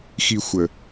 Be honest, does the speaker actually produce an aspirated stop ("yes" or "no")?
no